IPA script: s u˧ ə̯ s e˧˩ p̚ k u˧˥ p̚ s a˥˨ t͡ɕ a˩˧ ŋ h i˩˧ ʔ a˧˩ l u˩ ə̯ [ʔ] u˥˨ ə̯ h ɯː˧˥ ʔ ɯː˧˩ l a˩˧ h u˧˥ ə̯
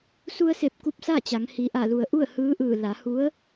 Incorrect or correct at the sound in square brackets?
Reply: correct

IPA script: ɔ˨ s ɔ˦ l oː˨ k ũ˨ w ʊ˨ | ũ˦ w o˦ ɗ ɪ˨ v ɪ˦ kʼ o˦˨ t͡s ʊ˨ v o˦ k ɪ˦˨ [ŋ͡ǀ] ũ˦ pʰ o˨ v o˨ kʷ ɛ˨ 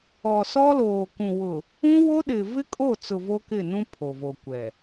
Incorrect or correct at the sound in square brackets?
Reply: incorrect: n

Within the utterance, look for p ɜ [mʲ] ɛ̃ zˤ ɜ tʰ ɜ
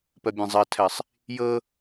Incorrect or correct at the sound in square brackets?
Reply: incorrect: bʲ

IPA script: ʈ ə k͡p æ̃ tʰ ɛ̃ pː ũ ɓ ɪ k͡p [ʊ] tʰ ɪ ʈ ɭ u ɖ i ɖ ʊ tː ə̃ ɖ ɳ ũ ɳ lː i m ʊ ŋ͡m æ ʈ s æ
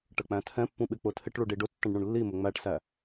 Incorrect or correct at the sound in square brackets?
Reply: correct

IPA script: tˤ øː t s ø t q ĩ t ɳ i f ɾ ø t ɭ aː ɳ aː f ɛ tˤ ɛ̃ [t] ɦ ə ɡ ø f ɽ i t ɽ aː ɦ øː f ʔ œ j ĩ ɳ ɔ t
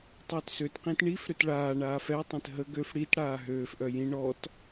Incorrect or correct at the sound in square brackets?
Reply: correct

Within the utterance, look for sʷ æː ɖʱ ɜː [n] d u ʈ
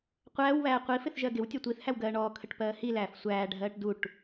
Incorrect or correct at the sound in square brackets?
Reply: incorrect: ʈ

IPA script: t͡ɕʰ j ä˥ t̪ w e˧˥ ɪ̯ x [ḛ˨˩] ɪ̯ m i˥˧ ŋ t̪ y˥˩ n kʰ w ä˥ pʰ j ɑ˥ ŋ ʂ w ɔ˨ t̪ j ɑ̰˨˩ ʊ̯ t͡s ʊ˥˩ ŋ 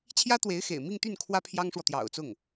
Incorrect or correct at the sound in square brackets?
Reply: correct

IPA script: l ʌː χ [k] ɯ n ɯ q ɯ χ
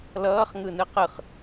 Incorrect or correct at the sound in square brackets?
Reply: incorrect: ŋ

